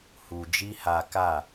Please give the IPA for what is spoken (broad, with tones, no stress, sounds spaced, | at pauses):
h u˨ d͡ʒ i˦ h a˧ k a˦˨